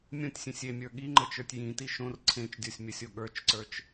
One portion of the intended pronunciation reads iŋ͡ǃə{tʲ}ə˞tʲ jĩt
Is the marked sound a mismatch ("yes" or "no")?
yes